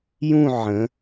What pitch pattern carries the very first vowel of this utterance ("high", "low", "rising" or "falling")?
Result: falling